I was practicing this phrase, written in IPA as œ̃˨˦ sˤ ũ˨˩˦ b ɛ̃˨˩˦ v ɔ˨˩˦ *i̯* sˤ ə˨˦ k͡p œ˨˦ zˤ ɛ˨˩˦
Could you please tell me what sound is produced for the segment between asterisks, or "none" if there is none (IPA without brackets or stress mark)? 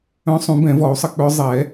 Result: u̯